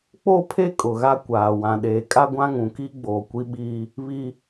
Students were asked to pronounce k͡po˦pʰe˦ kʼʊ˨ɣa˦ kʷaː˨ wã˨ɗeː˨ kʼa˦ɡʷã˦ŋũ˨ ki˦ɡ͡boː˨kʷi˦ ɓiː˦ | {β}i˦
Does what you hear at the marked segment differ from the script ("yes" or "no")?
no